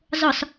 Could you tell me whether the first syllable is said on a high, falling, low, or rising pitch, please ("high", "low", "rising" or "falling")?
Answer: low